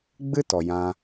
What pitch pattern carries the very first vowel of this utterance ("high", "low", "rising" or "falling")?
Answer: high